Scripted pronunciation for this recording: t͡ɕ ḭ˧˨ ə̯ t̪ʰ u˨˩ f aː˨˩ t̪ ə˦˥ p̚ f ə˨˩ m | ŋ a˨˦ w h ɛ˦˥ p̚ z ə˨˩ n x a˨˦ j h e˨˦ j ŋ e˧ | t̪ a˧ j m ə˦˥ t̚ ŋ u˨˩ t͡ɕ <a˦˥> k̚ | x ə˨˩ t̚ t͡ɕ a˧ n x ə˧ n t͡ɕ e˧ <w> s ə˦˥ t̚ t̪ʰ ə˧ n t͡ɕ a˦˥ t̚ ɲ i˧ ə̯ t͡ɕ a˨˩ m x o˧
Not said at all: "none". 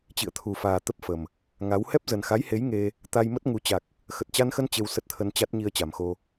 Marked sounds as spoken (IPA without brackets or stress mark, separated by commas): a˨˩, w